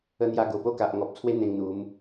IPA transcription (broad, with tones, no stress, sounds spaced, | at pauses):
ə˧ n̪ j a˧ ɡ o˨˩ p o˦ k a˨ ʔ ŋ ɔ˨ p̚ t͡sʰ w e˦ n̪ ẽ˧ ŋ n̪ u˨˦ m